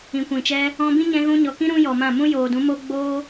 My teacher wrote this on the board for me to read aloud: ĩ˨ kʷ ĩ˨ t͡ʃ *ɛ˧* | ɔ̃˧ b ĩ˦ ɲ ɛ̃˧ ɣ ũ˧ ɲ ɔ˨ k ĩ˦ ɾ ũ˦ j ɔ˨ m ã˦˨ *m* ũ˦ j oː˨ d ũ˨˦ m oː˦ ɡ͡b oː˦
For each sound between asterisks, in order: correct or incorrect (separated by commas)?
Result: correct, correct